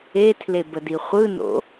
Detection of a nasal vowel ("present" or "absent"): absent